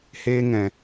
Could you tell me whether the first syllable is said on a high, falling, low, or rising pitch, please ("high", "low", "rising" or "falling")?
high